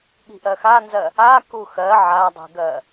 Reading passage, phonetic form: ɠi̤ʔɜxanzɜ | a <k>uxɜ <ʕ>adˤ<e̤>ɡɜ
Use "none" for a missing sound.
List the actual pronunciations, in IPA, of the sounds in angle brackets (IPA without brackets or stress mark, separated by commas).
k, ʕ, i̤